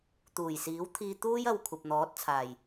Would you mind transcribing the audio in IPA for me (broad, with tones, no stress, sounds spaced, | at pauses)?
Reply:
t̪ uː˨˩ j s iː˨˥ w t̪ʰ iː˧ t̪ uː˥ j ɐ˨ w kʷʰ ɐ˨ p̚ n̪ ɔː˨˥ t̚ t͡sʰ aː˨˩ j